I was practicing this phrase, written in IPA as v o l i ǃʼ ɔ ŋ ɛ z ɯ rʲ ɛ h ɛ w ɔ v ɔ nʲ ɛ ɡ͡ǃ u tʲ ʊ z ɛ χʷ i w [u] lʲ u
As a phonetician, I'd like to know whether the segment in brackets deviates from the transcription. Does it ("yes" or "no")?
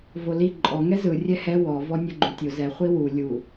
no